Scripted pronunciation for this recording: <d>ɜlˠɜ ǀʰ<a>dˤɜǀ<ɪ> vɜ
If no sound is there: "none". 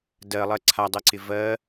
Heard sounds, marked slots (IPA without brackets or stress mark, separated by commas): d, a, ɪ